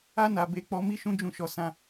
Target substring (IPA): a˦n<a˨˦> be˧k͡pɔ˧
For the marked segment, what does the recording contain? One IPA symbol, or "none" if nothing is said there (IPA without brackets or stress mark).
a˧